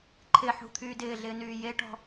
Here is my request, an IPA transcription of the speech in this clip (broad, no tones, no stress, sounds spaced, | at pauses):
ǃʰ ɪ ħ ṳ t̪ʰ yː d ɪː ɮ ɪː n yː j e ʈ ɔ̤